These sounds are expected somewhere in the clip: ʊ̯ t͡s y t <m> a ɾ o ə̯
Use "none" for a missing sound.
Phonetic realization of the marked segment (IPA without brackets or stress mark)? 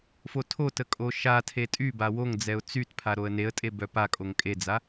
pʰ